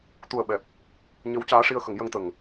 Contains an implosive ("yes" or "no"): yes